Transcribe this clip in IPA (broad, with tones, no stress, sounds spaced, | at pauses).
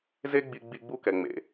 z e˥ ɡ͡b i˧ ɡ͡b i˧ ɡ͡b u˧ k ɛ˩ ŋ͡m ḛ˩